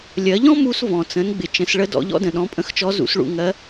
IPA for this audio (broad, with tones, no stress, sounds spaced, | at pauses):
lʲ ɜ˩˧ ʎ ɔ̃˥ m u˧ s v ɔ̃˩ t͡s ə̃˩˧ n ɡ͡b ɪ˩ t͡ʃ ə̃˩˧ s ɭ ə˧˥ d ɔ̰˩˧ ʎ ɔ̰˥ d ə̃˩ ɗ ɔ̃˩˧ pʼ ə̃˧˥ x t͡ʃ ɔ˧˥ z ṵ˩˧ s ɭ ṵ˩ ŋ ɜ˧˥